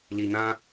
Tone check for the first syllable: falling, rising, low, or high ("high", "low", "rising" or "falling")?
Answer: low